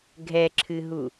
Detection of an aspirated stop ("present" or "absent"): present